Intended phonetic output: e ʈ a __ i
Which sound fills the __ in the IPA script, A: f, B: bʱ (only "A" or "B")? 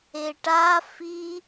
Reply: A